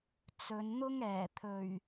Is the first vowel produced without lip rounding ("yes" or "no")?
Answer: no